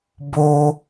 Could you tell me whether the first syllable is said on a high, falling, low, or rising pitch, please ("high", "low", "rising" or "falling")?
high